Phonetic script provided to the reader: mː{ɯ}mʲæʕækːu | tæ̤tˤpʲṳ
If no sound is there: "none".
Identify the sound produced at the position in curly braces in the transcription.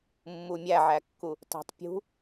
u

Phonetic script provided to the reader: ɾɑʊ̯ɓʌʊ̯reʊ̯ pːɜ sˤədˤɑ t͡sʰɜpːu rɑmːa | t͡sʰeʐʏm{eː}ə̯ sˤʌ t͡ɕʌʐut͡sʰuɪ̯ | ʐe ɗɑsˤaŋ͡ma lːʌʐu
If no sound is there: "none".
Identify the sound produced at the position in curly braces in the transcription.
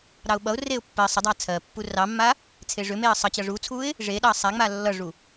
e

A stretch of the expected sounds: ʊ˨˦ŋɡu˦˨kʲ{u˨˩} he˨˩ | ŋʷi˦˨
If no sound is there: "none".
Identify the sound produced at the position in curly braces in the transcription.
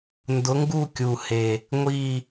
u˨˩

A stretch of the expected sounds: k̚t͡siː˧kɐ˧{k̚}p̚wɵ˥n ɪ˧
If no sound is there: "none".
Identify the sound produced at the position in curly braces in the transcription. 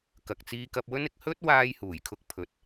none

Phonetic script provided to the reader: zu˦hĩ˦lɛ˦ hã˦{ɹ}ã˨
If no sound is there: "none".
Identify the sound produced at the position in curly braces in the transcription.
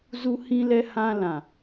l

